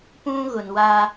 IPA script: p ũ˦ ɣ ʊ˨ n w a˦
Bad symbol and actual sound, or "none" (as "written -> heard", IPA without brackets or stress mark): none